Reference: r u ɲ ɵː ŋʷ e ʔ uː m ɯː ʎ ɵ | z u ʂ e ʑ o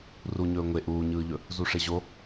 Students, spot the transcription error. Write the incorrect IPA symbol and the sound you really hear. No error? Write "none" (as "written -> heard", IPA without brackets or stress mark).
m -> ɲ